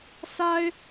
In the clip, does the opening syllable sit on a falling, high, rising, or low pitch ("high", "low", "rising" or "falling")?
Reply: high